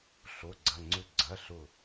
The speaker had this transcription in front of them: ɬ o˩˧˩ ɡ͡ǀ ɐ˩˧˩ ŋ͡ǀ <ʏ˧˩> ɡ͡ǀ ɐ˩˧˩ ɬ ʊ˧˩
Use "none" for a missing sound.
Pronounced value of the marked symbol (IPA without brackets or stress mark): ʏ˧˩